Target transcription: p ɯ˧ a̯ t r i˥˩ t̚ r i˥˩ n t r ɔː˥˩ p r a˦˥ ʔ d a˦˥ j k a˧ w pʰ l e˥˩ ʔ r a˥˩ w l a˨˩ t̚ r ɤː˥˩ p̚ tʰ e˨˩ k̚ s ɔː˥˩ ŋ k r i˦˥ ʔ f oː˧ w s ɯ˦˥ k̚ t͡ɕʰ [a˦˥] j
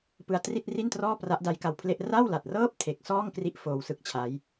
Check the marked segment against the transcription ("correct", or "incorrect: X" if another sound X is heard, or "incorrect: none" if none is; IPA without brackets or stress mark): correct